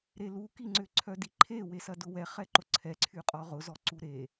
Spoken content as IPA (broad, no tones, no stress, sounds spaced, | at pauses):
ɾ e l u k i ŋ͡ǀ ʏ ǀʰ œ d i ǃʰ e w e s ɐ d ʊ w ɛ χ ɛ ǃ ʊ ǀʰ ɛ ǀʰ y qʼ ɔ ʁ ʊ z ɔ ǀ u ɾ e